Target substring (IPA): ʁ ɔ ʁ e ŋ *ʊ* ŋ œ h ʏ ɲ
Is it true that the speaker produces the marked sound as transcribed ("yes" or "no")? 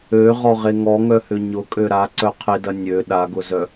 no